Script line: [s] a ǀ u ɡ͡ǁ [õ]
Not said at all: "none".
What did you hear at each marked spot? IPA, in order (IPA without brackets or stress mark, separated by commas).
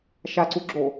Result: ʃ, o